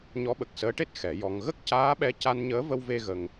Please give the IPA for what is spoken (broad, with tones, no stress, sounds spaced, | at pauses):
ɲ ɔ˧˥ ɓ ə˨˩ k̚ s əː˧˥ ʈ e˦˥ t̚ x ɛ˨˩˦ j ɔ˧ ŋ ɣ ə˦˥ k̚ c aː˧˥ ɓ ɛ˧ c a˧ n ɲ əː˧˥ v ə˧ w v e˧ ɣ ə˧ ŋ